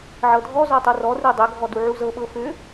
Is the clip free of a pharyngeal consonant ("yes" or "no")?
no